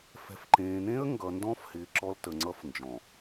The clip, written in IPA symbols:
fɛ̤˨fǃẽː˨n̪ẽ˦ə̯ ŋɡʌ˨ndɔ̃˦fhɪː˨ ǁɔ˦ltə˨ŋ͡ǀʌ˦f nd͡ʒɔ̃˨

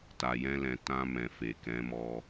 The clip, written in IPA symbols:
ta˨jɛ̃˧lɛ̃˨ tã˧mɛ̃˨ fe˨kɛ̃˨˦mɔ˧

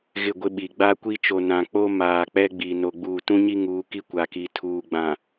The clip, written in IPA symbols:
ɣɪ˦˨ɡʷɪ˦ɓi˨ ɡ͡ba˦kʷi˦t͡ʃo˨ nã˨k͡po˦ maː˨k͡pɛ˦ ɡ͡bi˨ no˨ɡ͡buː˨tũ˦ɲi˦ ŋuː˨˦ki˦ kʷa˨ki˨ tʰuː˨ɡ͡bã˨

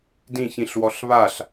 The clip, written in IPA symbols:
dĩçĩɬwɔɬ βaɬ

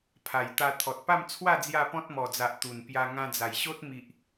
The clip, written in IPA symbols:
pʰa˨˩jt̪a˧ t̪ʰɔ˨t̚pa˥˧mt͡sʰwa˥˧ d͡zja˥˧pɔ̃˦t̚mɔ˨˩d͡za˨ʔ t̪u˨˩npja˧ ŋã˧d͡za˨˩jɕo˦t̚ mi˨ʔ

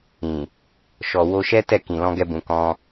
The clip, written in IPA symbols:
ĩ˨ | ʃɔ˨ wo˧ʃɛ˦tɛ˦˨ kĩ˨lɔ̃˧ɡɛ˧bũ˨ kɔ̃˧

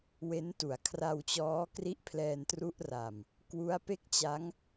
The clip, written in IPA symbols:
we˦˥ntu˩˦a̯ kʰra˧wt͡ɕɔː˦˥ kri˥˩ʔ pʰlɛː˧ntru˦˥ʔra˨˩m | kwu˦˥a̯pe˥˩k̚t͡ɕa˦˥ŋ

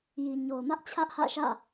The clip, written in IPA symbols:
ji˨ ɲo˨ʊ̯mä˦ʔt͡ɕʰä˦ʔhä̰˦˨ ʃä̰˦˨

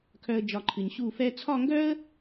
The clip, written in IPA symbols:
kʰœ˥ə̯d͡ʒɒ˥˧ǃʰɨ˧ɲ ɕu˥˧fɛ˥ t͡sʰɒ˥˧ŋɡœ˥ə̯

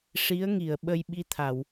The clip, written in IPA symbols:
ʂi˧˥ə̯ŋi˨˩˨ə̯ ɓə˧jɓi˧t̪ʰa˨˩˨w

